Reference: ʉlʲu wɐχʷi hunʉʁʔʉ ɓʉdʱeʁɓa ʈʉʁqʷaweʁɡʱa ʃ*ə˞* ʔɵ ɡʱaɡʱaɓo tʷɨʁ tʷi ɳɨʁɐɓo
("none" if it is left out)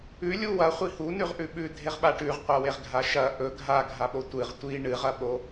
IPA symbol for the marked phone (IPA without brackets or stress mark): ɐ